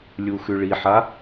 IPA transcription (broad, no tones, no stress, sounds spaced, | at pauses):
lʲ u x ʉ ɭ i ħ a